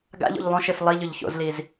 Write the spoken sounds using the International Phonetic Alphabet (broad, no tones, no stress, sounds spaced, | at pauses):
ɡ a̰ ʎ o̰ ʎ lˠ õ ʃ e f lˠ i ʎ ɵ ʎ ç o̰ z l i z